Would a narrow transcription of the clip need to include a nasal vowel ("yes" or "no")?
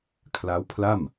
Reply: no